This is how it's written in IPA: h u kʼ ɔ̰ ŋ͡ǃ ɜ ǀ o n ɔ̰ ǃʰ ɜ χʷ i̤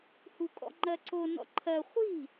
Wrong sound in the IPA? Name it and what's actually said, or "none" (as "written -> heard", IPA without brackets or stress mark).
none